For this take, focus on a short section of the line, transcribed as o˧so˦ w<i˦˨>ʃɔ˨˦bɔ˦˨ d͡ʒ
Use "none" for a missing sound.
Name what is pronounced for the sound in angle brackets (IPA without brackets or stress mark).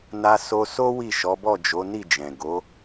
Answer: i˦˨